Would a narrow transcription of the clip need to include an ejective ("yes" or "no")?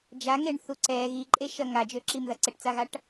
yes